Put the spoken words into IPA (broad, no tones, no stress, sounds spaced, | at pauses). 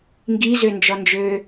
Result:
ŋ ɡ i z ø n d͡ʒ ɔ n d͡ʒ øː